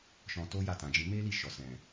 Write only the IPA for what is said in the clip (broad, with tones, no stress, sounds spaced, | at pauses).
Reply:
ʃ ɔ̃˧ t o˦ j a˦˨ t ã˨ d͡ʒ ĩ˧ m e˦ l i˦˨ ʃ ɔ˨ s ɛ̃˨